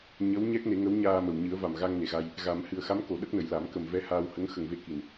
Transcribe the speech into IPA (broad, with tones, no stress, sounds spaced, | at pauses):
ɲ ə˧˥ w ɲ ɛ˦˥ k̚ n e˨˩˦ ŋ ə˧˥ w ɲ aː˧ m ə˨˩ w ɲ ɨ˨˩˦ ə̯ v a˨˩ m ɣ a˧ ŋ n e˨˩ ɣ a˧ j | ɣ a˨˩˦ m h ɨ˨˩ ə̯ x a˧˥ m k o˨˩˨ ɗ ə˦˥ k̚ n ə˨˩ j l a˨˩˦ m k ə˨˩ m v ɛ˧ h aː˧ w h ə˧˥ ŋ x ə˨˩ ŋ v e˧ k i˨˩ n